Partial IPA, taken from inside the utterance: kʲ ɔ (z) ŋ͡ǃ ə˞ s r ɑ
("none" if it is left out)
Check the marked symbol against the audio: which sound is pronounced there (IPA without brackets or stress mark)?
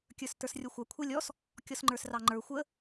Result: s